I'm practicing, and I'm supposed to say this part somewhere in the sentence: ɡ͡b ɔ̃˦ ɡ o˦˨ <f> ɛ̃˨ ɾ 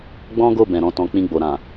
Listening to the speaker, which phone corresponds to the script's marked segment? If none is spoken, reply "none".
b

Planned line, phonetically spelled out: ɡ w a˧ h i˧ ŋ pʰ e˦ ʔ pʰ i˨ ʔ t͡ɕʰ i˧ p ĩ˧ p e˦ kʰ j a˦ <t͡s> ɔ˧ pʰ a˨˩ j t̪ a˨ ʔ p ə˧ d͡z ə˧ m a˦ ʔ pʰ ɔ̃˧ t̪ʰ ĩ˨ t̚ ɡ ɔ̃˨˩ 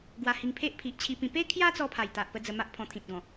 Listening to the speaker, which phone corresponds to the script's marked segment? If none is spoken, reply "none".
t͡s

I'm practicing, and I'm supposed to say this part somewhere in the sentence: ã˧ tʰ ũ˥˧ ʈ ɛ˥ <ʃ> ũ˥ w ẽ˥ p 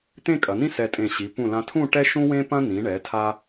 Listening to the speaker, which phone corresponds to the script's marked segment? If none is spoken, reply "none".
ʃ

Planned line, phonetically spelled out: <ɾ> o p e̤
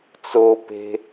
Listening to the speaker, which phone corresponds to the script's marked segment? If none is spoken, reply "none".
t͡s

